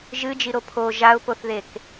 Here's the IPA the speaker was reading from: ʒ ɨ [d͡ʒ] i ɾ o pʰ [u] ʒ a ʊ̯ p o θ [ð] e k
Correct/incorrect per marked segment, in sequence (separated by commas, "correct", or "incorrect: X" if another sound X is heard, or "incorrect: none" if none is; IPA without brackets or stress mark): correct, incorrect: o, correct